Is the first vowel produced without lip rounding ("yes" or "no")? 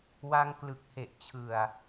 yes